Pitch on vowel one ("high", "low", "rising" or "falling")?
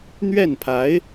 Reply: falling